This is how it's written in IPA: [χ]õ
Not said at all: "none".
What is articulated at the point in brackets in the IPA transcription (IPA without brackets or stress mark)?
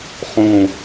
χ